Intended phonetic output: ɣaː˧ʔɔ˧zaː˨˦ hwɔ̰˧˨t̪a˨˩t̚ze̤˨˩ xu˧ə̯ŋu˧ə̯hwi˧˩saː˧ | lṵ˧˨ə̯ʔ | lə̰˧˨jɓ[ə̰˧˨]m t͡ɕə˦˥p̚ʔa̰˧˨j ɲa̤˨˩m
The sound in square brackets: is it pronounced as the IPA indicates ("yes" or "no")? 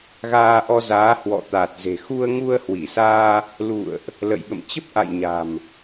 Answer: yes